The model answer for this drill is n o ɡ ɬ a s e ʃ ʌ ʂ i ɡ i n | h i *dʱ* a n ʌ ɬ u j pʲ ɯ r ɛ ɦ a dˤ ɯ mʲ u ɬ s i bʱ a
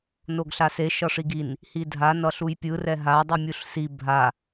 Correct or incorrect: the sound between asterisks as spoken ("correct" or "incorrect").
correct